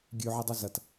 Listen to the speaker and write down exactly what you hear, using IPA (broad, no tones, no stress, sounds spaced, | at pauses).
ɡʲ ʉ ʕ ɨ dˤ ɵ z ɐ t